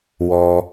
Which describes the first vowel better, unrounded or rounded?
rounded